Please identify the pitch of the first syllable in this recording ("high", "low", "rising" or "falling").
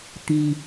low